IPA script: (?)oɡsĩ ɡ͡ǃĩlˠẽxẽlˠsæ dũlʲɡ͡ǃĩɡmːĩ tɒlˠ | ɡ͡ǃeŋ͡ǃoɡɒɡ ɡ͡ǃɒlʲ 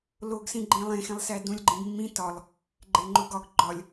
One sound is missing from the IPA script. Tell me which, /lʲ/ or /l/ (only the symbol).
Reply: l